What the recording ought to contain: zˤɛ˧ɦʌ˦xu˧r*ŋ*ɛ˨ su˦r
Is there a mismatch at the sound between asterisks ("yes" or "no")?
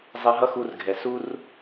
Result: yes